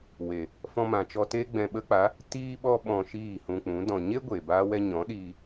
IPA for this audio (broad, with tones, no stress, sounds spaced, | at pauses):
w e˨ | f ɔ̃˧ m ã˨ t͡ʃ ɔ˧ t e˦ ɡ͡b ɛ̃˧ ɓ ə˦ k͡p a˨˦ | t iː˦ ɓ ɔ˦ ɓ ɔ̃˧ ʃ iː˦˨ h ũ˧ k͡p ũ˨˦ d ɔ̃˨ ɲ e˦ ɡʷ eː˨ b aː˦ w ɛ˦ ɲ ɔ̃˨˦ ɗ iː˧